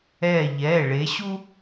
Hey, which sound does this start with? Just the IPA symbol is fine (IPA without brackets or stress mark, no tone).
ɛ